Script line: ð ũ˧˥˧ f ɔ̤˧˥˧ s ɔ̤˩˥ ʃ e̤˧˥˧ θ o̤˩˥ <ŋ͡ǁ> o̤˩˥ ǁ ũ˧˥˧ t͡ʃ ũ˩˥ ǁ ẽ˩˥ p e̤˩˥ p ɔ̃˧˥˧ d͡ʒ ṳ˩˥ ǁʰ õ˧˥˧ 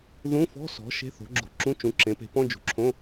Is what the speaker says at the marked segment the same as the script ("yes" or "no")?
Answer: no